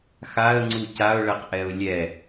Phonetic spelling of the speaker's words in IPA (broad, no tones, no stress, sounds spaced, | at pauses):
x a ə̯ ŋ͡ǀ u c a ʊ̯ ɭ ɛ q ʔ ɛ ʊ̯ lʲ ɛ